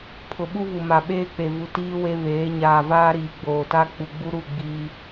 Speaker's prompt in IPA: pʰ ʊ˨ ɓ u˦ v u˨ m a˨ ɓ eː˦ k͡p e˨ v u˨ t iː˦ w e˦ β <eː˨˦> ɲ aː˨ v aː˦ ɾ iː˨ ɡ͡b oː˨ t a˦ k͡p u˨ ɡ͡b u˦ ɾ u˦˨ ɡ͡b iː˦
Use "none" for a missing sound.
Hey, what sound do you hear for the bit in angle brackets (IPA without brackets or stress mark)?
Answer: eː˨˦